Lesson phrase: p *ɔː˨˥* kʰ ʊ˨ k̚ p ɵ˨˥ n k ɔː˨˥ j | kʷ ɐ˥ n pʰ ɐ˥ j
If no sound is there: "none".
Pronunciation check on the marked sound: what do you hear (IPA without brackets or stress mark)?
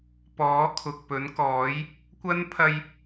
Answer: ɔː˨˥